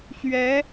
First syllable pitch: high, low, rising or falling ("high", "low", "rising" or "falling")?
rising